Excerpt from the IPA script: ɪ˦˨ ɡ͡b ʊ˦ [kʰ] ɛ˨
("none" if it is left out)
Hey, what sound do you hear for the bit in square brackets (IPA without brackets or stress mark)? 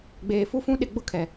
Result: kʰ